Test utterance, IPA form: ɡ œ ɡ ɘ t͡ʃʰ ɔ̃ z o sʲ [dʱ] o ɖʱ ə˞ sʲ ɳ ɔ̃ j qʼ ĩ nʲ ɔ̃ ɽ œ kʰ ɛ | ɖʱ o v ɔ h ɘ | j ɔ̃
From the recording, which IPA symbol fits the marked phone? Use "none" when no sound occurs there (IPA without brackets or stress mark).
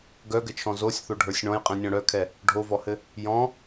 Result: θ